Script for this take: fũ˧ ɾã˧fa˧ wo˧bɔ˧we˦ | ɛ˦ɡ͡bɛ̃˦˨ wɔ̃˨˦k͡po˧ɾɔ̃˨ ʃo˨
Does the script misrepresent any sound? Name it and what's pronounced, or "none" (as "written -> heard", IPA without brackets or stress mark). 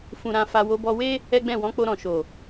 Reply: none